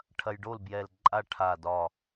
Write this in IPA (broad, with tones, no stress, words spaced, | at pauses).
ʈʰɐ˧jɖo˥˨lbjɛ˧˩l ǃʼa˥˨ʈʰa˧˩dɒ˧˩